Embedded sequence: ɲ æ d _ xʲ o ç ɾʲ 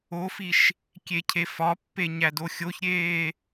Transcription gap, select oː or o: o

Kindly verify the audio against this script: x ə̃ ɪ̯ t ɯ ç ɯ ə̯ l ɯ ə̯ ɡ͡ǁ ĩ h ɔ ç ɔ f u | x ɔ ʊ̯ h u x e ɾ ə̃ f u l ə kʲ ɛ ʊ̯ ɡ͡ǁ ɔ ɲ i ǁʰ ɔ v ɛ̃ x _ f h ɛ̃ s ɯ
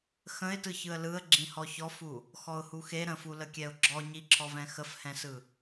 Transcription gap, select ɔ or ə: ə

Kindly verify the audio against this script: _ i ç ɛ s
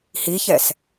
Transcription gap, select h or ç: h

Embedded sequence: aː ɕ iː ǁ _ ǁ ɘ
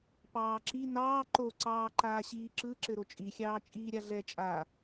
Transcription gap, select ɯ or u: ɯ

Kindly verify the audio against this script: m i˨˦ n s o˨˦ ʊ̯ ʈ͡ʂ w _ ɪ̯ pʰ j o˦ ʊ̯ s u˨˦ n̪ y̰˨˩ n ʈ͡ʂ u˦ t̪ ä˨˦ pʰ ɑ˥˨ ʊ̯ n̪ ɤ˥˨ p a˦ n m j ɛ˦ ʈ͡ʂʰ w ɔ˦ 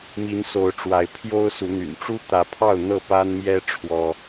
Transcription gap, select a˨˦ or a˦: a˨˦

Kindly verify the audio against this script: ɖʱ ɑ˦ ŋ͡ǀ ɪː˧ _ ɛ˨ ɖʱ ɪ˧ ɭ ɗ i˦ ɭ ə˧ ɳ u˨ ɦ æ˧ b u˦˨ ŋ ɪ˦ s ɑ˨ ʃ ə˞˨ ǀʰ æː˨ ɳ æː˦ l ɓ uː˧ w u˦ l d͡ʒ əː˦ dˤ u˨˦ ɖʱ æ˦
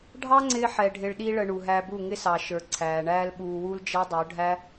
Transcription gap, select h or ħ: ħ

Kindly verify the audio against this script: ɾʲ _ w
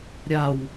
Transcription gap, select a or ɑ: a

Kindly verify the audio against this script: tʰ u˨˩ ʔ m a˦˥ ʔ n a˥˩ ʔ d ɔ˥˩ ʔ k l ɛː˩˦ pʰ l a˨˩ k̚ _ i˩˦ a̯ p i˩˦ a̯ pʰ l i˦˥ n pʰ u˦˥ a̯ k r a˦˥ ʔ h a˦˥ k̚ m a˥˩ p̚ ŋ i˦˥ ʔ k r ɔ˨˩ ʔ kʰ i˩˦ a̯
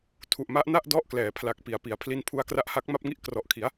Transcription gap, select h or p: p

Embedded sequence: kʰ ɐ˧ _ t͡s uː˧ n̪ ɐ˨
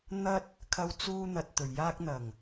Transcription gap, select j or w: w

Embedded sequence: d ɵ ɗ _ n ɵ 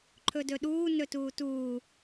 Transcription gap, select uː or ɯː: uː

